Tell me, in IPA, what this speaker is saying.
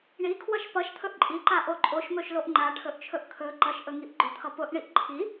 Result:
ɳikʰwʌʃ pʌʃt̪ʰɵʔ ǃʼiǃaʔo ǃʼoʃmɵʃloʔ ŋ͡ǃaʈʰɵʔt͡ʃʰɵʔ kʰɵ ǃʌʃʔɵŋiʔ ɡ͡ǃʊt̪ʰʌ pʊʔɳiʔ ǃʰi

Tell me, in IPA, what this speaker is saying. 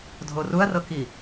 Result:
dʱoruɐ̯rɤki

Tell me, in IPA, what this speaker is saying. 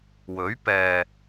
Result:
wɵ˨˥ɥpɛː˨

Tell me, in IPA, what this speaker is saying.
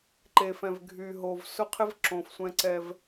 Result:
ǃe˨fɛ̃˨v ɡʱy˨ɦo˨v sʊ˦qʰɪ˦v ǁõ˨fsʷɛ̃˦ ǀɛ˦v

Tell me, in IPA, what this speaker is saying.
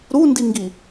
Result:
ɾundiŋɡi

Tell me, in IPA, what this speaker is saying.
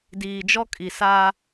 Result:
diː˨d͡ʒɔ˦ kʼi˨saː˦

